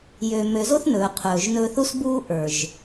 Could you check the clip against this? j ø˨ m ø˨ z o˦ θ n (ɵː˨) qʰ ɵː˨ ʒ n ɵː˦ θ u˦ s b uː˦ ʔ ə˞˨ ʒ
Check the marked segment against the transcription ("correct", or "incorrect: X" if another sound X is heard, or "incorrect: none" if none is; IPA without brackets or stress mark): correct